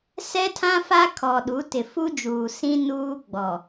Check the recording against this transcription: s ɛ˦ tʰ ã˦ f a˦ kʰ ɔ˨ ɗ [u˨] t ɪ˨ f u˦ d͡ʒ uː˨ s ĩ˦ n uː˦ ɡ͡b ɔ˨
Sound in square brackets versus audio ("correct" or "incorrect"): incorrect